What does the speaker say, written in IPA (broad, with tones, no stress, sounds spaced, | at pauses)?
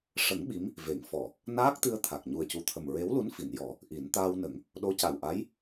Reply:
ʂ ə˨˩˦ ŋ ɓ i˧˥ m | v e˨˩˨ ŋ f ɔ˨˩˨ | n aː˦˥ k̚ t̪ ɨ˧ ə̯ t̪ʰ a˨˩ k̚ ɲ u˨˩ ə̯ c u˨˩ t̪ʰ ə˨˩ m ɹ e˧˥ w l u˧˥ n f i˨˩˨ n j ɔ˨˩˦ | ʔ i˨˩˦ n t̪ aː˧ w n ə˨˩˦ ŋ | ɗ o˧˥ c a˨˩ w ʔ a˧˥ j